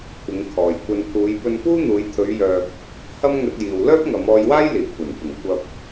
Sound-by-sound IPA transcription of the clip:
kʷʰɪ˨˧ŋkʰɔː˨jkʷʰɐ˧n pʰuː˨˧j pɵ˧npuː˥n̪uː˨˧jt̪ʰɵ˨˧ɥ jœː˨k̚ | hɐ˥mŋɵ˧t̚jiː˨w lœː˥p̚ŋɐ˨˧mɔː˧jwaː˥j liː˨˩kʷʰɐ˨˩npɪ˨˩ŋ kʷɐ˨p̚

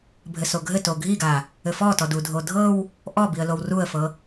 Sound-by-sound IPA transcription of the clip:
bʱɘsoɡʱɘ toɡʱiɡa | ɘfɔtɔd udʱodʱɤw | ʔɔ biə̯lowruə̯fɤ

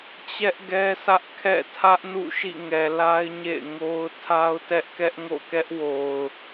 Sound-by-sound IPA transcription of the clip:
t͡ɕɛ˦ʔɡɛ˦sä˦ʔ kʰɛ̰˦˨tʰä˦ʔ nṵ˦˨ʃḭ˦˨ŋɛ˨la˦ɪ̯ ɲḛ˦˨ɪ̯ŋo˦ʊ̯ tʰa˦ʊ̯tɛ˦ʔkɛ˦ʔ ŋo̰˦˨kɛ˦ʔwo˨ʊ̯

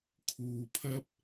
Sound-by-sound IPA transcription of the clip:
kʰuː˨pʰɐ˥p̚

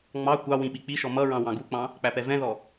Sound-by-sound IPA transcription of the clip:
ŋ͡mɑ kʷɑ wĩɓik͡piʃɔ mʌɹɑ̃ wɑ̃ɡuk͡pɑ̃ | k͡pæpɛvɛ̃ðɔ

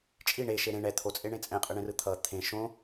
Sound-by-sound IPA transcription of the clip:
t͡ʃʼi ɳeʃe ɾẽ ɳɛ t̪ʰot͡sʼeɳẽ t͡sʼɛ̃qʼɯɳẽrɯ t̪ʰʌ t̪ʰẽ ʃõ

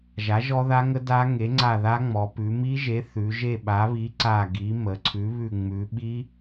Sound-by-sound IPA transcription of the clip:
ʒa˨˥ʒɔ˦˥ða˦˥ŋə˦˥ da˦˥ ŋe˨˥ŋ͡ǀa˦˨ ða˦˥ŋ͡mɔ˩˧ pʉ˩˧mi˦˥ʒe˨˥ θʉ˩˧ʒe˦˨ɓa˨˥βi˨˥ ǀa˦˨ɡi˨˥ mə˩˧ǀʰʉ˨˥βʉ˦˨ ŋ͡mʉ˩˧ɓi˦˥

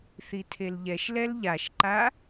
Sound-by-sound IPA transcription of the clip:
θitʰelʎɛʃlɛl ʎaʃǃa

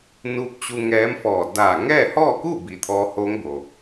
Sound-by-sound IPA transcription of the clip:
nu˧˥p̚t͡ɕu˧ŋɛː˧˥mfɔː˧˩ daː˧˩ ŋɛː˥˨hɔː˥˨ku˥˨bi˩ t̪ʰɔː˧hoː˧˥ŋbo˩

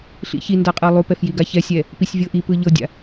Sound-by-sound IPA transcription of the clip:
ɬḭçinda qʼɤlˠupɛf jiɡaçɛsʲɛ | pisʲvʲɤʔipɯ ʎɤdʲa̰

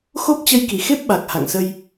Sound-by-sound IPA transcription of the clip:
xo˦˥p̚t͡ɕə˧jki˧˩xe˦˥p̚ ɓa˨˩k̚ ha̰˧˨ŋsə˧j

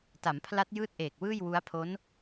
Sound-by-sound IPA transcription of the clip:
ta˩˦mpʰla˦˥t̚ jɯː˥˩t̚ʔeː˨˩k̚wɯː˥˩j wu˦˥a̯ pʰo˦˥n

